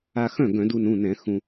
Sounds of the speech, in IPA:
a˧xœ̃˥˩ ɡœ̃˧˩˧du˧nũ˩˧˩nɛ̃˧˩˧ xũ˧

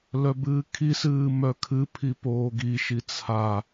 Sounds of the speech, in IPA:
lœbɨːkʰisɨː mœkʰɨpʰi poːɡiʃi t͡sʰa

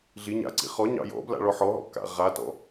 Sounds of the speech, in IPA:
ɮi ɲa̰ǀḭ χɔ ɲɑ̰jɔ̰bla̰ ɭɔħɔɦɔ̰ ka̰ʁatɔ̰

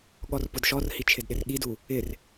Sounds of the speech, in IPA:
ɠɔrpʊdʃɔrhi t͡ʃʰɪdɗɪrɠidu | ɪr

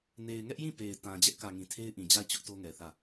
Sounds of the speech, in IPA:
ne˨ɪ̯ŋɛ˦ʔjĩ˦˨ pe˨ɪ̯tã˨ d͡ʑɛ˦ʔkä˨ŋĩ˨ tʰe˦ɪ̯ʔĩ˨d͡ʑa˦˨ɪ̯t͡ɕʊ˦ʔ to˦ŋɛ˨θä˦˨

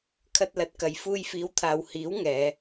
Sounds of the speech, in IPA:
kʰɐ˧t̚lɐ˨˥t̚kɐ˨j fuː˧jfiː˨˥wt̪ʰaː˨w hiː˨˥wŋɛː˨˧

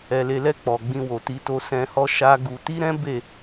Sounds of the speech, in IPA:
ɛ˨le˨lɛ˧ k͡pɔ˨ ɡ͡bĩ˧wo˨ti˧to˧ sɛ̃˧hɔ˦ ʃa˦ɡu˧ ti˦ɾɛ̃˦ be˦˨

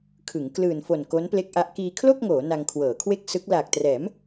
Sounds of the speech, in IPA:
kʰɯ˩˦ŋ klɯː˨˩nfo˨˩n ko˦˥nple˦˥k̚ʔa˦˥ʔ kiː˧kʰlo˥˩k̚ŋoː˩˦ na˧ŋkʰwɤː˩˦kʰwe˥˩k̚ sɯ˦˥k̚ laː˨˩k̚trɛː˩˦m

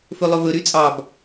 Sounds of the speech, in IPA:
fɵlˠɵvɵ ɾyt͡sʼɑb

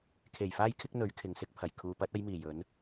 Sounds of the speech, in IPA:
kʰe˨˩jfaː˧jkʰɪ˧k̚ n̪ɵ˨˥ɥkʰɪ˨ŋ sɪ˨˥k̚pʰɐ˨˩j kʰuː˨pɐ˨˥t̚ ɐ˨˧jmiː˨˩ jɵ˨˧n

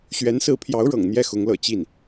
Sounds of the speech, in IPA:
ɕɥɛ˧˥nsɹ̩˧˥pʰjɑ˧˥ʊ̯ɻɤ̰˨˩ŋ n̪jɛ˥˩xʊ˧˥ŋlɤ̰˨˩ t͡ɕi˥˩n

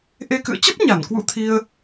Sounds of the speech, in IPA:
ʔe˧kɨ̰˧˨ə̯ t͡ɕə˦˥p̚ɲa˧˩n kwṵ˧˥t̪ʰi˧ə̯

